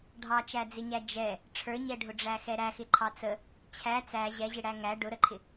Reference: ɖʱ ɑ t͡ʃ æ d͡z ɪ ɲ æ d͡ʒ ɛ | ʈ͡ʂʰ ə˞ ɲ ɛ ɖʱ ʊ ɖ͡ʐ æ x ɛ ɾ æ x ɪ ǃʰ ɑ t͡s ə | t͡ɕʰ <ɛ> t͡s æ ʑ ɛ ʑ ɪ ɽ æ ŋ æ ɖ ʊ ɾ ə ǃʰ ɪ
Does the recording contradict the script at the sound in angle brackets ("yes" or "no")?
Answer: yes